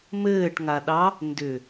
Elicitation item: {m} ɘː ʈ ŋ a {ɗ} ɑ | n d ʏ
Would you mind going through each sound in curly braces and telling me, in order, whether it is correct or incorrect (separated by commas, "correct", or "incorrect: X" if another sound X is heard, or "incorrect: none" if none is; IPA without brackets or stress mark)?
correct, correct